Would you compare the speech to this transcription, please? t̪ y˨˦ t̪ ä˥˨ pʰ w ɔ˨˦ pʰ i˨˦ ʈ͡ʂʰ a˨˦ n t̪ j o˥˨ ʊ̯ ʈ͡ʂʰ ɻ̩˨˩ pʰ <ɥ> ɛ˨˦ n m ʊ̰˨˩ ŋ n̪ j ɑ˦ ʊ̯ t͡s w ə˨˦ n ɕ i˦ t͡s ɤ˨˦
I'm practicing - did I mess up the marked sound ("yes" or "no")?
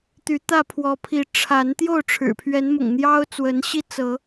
no